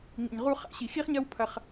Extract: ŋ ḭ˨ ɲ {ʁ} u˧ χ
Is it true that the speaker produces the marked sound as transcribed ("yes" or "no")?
yes